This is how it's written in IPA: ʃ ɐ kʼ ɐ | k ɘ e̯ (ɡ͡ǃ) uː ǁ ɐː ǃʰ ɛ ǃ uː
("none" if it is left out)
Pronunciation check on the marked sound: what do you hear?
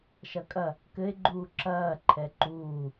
ɡ͡ǃ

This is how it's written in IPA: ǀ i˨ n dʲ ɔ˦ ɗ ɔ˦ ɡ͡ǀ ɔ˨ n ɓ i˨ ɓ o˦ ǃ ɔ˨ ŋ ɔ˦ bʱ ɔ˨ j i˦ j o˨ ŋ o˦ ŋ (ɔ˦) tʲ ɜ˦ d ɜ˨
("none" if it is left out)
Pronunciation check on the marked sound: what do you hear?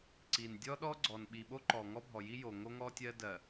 ɔ˦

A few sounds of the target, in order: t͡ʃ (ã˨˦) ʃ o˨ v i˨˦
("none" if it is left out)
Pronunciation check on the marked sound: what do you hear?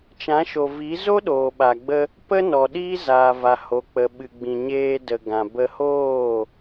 ã˨˦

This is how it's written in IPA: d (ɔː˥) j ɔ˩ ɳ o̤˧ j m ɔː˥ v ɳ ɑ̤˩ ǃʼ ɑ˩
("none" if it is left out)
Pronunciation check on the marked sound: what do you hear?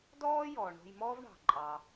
ɔː˥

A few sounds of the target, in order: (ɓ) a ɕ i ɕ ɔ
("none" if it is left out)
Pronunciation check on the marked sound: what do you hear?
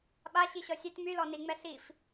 ɓ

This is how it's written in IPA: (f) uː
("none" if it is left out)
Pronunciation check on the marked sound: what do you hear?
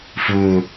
f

